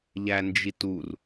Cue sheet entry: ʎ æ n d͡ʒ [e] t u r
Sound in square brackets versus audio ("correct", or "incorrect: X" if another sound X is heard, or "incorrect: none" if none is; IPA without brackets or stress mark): incorrect: i